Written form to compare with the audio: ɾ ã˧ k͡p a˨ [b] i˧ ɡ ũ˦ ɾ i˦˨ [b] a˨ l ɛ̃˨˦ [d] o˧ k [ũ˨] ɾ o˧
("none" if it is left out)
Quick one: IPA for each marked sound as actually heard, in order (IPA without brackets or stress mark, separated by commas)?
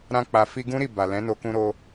f, b, n, ũ˧